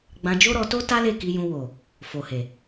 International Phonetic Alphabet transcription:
ɡ͡b ã˧ d͡ʒ o˦ ɾ ɔ˧ t o˦ t a˦ l e˦˨ k i˧ j ũ˧ w o˨ | f o˨ h e˨

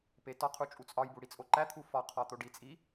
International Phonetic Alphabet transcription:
p e t ɒ qʰ u t͡ʃʼ u t͡sʼ ɒ j b u ɽ i t͡sʼ o ǃ æ t̪ʰ u f ɒ qʰ ɒ t̪ o ɖ i t͡sʼ i

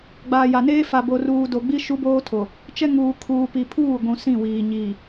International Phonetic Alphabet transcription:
ɡ͡b aː˨ j a˨ n eː˦ f a˨ b o˨ r uː˨ d o˨ ɡ͡b i˦ ʃ u˦ b oː˦ tʰ o˨ | t͡ʃ ɛ˦ ŋ uː˨ kʰ uː˨ p i˨ pʰ uː˦˨ ɡʷ ũ˨ s ĩ˦˨ w iː˨ ɲ iː˨

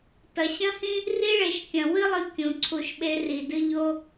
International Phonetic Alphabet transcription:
t ɐ˩ ɕ ɐ̃˥ h ĩ˥ | r i˥ ɭ e˩ ʃ kʲ ɐ̃˩ w ɨ˥ lˠ ɨ˨ kʲ ũ˩ ǀʰ u˨ ʃ ɓ e˦ r i˩ d ɨ˦ ʎ o˦

